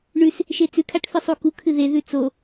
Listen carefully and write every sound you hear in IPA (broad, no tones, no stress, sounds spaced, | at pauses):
ɳ ʉ s | ʃ e t͡s ʉ kʰ a ʈ θ ɨ sˤ u k u kʰ ɨ ð e ð ʉ t͡s o